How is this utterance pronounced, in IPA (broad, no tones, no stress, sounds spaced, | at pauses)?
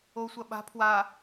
o sʷ ɐ ɓ a̤ pʰ w a